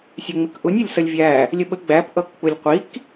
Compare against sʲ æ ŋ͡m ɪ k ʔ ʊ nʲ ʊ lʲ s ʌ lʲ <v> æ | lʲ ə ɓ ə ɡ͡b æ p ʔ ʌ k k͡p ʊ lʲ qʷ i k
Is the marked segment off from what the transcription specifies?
yes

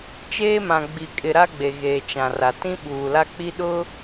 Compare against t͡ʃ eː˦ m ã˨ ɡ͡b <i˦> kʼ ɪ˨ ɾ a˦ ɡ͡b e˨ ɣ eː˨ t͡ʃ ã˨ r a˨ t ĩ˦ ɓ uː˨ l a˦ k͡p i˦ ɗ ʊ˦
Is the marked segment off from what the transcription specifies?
yes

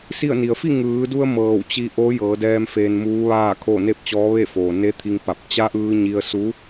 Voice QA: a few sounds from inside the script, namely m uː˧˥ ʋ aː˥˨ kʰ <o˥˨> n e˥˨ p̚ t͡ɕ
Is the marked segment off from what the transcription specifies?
no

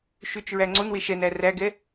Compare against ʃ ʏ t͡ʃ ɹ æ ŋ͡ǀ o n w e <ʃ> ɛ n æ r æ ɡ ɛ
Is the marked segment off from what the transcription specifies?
no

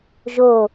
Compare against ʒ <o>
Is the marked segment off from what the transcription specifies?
no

